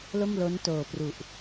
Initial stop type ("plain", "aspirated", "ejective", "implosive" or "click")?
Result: plain